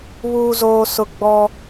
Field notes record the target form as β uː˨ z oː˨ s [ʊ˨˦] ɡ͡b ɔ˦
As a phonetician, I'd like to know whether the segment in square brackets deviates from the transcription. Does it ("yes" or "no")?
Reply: yes